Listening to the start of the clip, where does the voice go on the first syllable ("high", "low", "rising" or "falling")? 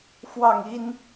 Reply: falling